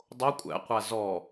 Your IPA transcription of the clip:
dˤ o kʷʼ æ̰ qʷ a z ɔ

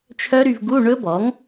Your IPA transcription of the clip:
t͡ʃʰ œ˦˥ ɾ y˧ v ɡ u˧˥˧ ɳ ɵ˦˥ b ɔ˩˥ ŋ

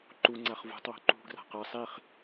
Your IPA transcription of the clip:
ǃ u ŋ͡ǀ a χ v ṳ tˤ w ṳ ǃ ṳ ɡ r a̤ q a sˤ i χ

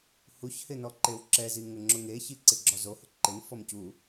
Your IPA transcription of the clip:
h u ç h ɪ n ɔ ǃ e w ǁ ɛ z i ŋ ʊ ŋ͡ǁ ʊ ŋ e ç i ǀ ɪ ɡ͡ǁ ɔ z o h ʊ ǃ ɪ n f ɔ m c u

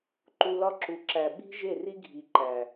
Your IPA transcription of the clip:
ǃ u˧ l ɒ˦ ǁ u˨ ǁ æ˨ ɓ i̤˦ ʒ e˦˨ r i˦ ɡʱ i˨ ǃ æ˨

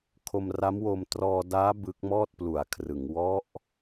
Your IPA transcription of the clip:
kʰ o˧ m r a˦˥ m w o˧ m t r ɔː˧ d aː˦˥ b ɯ˦˥ k̚ m ɔː˥˩ t̚ p l u˩˦ a̯ kʰ r ɯ˩˦ ŋ w ɔ˦˥ ʔ

